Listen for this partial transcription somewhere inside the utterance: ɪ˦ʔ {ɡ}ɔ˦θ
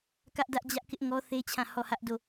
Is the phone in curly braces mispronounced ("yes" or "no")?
yes